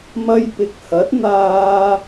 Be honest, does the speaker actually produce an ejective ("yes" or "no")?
no